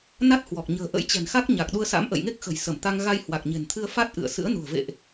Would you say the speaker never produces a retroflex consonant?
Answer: yes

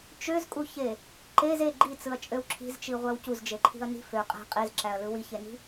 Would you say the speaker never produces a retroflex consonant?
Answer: yes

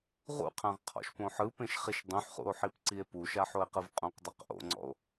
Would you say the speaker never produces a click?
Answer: no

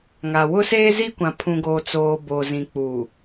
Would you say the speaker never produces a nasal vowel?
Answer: no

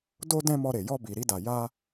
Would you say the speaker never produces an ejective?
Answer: yes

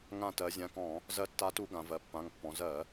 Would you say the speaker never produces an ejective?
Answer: yes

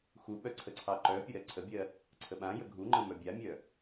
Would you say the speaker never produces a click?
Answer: no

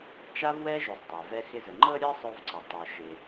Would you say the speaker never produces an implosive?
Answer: yes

